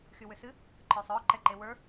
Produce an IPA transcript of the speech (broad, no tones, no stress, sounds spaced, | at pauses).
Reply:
x y w ʏ s ɨ | ǃ ə˞ sˤ ɔ ǃ ɛ ǃ e w ə˞